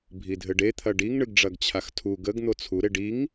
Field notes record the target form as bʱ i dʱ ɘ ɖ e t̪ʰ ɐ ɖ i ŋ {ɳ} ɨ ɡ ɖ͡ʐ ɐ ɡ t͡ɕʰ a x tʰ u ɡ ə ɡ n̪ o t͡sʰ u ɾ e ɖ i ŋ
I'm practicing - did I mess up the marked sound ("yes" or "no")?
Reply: no